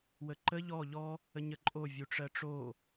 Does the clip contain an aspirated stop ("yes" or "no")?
no